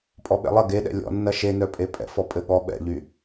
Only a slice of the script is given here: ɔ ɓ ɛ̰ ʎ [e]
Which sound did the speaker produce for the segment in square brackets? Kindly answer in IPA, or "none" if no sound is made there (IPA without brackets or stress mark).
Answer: y